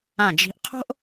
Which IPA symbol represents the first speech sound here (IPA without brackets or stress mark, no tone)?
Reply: ã